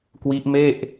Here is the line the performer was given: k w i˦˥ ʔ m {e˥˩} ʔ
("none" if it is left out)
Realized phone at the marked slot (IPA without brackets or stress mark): e˥˩